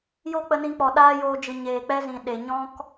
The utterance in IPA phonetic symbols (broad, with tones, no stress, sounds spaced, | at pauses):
j o˦ k͡p ə˧ n ĩ˧ k͡p ɔ˨ ɗ aː˦ j oː˧ d͡ʒ ɨ˨ ɲ eː˨ k͡p ɛ˦ z ĩ˨ ɗ e˨ ɲ ɔ̃˦ k